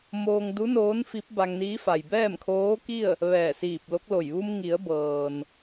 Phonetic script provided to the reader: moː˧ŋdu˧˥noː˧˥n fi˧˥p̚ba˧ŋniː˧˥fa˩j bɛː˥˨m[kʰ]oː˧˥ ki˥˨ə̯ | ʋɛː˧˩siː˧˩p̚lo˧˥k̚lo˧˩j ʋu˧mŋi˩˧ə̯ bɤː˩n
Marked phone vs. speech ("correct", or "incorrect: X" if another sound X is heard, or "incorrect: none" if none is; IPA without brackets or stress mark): correct